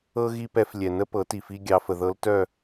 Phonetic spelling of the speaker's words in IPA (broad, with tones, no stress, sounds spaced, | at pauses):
ɤ˥ ɣ i˥ p ɛ˧˥ f lʲ ɛ˨ n ə˥ p ɤ˩˥ t i˨ f i˥ ɡʲ ɑ˧˥ f ə˨ ð ɤ˧˥ l t œ˥˨